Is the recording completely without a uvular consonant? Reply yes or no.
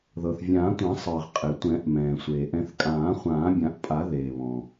no